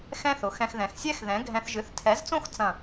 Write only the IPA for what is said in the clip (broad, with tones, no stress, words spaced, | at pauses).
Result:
xɛ̃˦θʊ˨xɛ̃˧x ðɛ̃˨xsʲɛ˦xðɛ̃˨˦ ɡʱɛ̃˧θʒɨ˨˦θ tʰɛ˨˦zt͡sõ˦x t͡sɐ̃˦˨